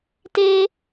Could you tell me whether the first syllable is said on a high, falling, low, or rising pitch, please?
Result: high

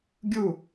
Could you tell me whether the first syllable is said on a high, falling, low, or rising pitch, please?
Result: falling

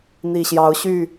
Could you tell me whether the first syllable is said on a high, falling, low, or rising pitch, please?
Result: low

